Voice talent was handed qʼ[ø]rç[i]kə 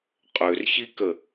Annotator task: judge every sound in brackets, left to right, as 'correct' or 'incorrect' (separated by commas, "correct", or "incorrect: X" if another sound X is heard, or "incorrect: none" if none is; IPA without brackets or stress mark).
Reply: correct, correct